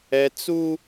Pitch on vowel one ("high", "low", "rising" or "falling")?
high